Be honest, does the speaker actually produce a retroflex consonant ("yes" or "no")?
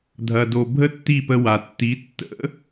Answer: no